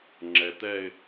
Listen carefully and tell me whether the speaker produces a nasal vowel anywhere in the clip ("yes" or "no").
no